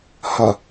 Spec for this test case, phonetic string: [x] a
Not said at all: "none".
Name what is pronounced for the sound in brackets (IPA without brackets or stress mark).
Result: h